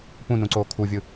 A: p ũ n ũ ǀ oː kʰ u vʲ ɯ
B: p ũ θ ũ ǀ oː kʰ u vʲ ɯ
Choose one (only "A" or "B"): A